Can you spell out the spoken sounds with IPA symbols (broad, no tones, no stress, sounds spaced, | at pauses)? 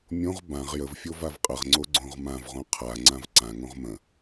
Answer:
mʲ õ ʁ b ã ʁ j ə v fʲ o v a v qʼ ə ʁ ŋ͡ǀ o ɡ͡ǀ õ ʁ m ã v ʁ õ qʰ a ŋ͡ǀ ã v ǀ ã ŋ õ ʁ m ə̃